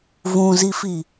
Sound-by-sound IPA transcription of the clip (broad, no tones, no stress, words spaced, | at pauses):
vũzifi